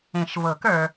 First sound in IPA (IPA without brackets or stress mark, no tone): ẽ